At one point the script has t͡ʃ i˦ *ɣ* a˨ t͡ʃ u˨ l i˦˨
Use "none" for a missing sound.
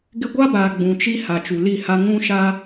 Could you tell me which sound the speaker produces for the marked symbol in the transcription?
h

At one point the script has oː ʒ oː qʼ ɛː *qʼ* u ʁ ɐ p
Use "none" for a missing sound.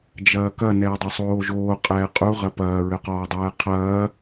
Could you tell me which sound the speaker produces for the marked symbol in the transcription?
qʼ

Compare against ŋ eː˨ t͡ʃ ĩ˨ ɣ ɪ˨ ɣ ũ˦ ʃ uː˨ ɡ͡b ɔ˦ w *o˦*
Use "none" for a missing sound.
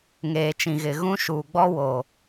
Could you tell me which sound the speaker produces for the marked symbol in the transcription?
o˨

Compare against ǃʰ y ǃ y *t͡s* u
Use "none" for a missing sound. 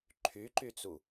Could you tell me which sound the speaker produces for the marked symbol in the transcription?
t͡s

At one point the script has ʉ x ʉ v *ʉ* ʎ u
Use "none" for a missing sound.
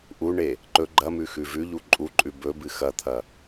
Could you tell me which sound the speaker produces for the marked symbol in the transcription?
ʉ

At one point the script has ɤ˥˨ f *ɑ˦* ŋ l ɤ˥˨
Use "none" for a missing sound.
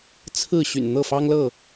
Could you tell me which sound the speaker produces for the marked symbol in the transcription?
ɑ˦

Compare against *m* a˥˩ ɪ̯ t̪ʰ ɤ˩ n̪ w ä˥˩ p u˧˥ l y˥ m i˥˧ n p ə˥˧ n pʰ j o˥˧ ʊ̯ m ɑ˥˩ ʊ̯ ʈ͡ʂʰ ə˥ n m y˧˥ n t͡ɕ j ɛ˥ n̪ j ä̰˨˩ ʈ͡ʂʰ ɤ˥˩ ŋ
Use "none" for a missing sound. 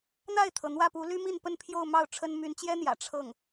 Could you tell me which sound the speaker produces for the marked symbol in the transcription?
n̪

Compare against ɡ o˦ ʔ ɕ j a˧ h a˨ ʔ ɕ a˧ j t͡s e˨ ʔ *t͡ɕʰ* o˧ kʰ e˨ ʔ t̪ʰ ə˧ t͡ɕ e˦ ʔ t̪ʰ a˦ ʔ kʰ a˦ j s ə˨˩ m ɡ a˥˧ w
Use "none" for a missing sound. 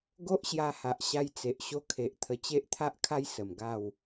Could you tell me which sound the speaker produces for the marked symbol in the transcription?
ɕ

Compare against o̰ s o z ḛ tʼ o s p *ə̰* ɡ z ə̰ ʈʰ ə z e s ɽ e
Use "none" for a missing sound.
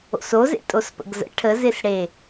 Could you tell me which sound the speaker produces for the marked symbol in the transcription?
ə̰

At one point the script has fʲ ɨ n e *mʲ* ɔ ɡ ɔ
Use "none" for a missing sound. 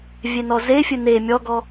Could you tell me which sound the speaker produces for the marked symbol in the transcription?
mʲ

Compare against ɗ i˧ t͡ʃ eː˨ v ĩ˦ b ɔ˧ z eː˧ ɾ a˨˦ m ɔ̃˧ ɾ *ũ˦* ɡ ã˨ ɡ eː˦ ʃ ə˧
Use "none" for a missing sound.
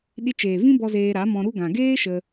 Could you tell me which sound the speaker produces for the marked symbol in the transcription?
u˦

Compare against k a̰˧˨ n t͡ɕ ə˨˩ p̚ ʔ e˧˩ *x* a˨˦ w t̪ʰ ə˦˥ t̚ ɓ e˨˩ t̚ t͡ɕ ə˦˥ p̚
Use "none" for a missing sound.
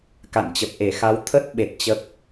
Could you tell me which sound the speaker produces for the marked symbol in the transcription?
x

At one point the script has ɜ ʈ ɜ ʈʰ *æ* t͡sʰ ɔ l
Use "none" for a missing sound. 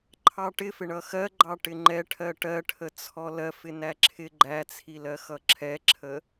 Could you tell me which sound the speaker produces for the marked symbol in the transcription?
ə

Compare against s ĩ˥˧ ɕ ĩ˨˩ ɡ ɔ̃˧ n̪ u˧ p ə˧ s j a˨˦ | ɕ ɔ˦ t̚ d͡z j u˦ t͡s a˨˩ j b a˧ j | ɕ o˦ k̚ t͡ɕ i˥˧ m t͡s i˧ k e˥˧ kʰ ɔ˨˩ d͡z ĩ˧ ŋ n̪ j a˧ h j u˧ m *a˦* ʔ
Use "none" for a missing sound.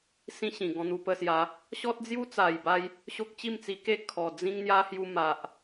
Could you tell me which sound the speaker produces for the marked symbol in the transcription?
a˨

